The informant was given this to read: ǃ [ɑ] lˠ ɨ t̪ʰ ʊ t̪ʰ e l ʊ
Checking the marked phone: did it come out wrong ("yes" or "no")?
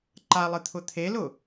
yes